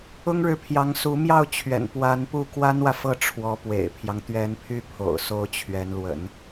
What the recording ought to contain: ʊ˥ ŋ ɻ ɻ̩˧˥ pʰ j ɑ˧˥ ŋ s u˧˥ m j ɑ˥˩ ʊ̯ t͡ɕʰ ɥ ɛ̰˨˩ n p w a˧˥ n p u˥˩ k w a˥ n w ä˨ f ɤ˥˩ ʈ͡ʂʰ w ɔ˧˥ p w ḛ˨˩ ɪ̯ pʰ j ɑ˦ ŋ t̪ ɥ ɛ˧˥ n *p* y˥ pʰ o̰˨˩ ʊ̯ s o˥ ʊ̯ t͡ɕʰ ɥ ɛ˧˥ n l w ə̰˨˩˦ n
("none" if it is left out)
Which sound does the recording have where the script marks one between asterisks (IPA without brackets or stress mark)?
pʰ